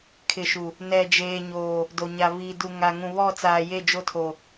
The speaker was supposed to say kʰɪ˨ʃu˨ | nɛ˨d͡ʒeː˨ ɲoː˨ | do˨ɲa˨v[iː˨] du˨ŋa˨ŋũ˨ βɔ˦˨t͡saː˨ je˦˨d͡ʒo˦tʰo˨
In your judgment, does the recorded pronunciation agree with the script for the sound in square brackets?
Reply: yes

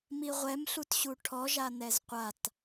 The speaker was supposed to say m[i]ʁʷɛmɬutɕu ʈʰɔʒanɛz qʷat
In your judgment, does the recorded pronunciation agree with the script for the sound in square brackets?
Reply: yes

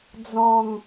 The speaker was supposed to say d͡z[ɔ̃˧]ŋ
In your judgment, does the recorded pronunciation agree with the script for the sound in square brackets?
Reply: no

